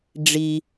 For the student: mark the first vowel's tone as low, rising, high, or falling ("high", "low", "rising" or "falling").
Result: low